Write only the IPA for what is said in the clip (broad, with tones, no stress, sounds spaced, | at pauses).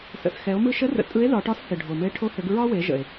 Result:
s ə̰˩ s x ɛ˩˧ o̯ m ɯ˧ ʃ ə˧˥ r ə̰˩ tʼ ɯ˧˥ e̯ ð ɒ˩˧ ʈ ɒ˧˥ s h ɘ˩ ɖʱ o˩ m ɘ˧ e̯ ʈʰ o˧ h ɘ˩˧ ɡ ɹ ɒ˥ w e˩˧ ʒ ə̰˩ e̯